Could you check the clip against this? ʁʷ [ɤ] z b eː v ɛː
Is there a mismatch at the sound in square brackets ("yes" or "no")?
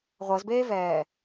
no